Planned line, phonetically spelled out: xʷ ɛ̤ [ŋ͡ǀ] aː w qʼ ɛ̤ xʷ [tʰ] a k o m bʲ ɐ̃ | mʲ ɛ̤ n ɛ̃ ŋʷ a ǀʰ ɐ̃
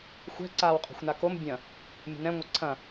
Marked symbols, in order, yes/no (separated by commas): no, no